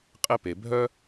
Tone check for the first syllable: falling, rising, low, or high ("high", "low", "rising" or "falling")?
high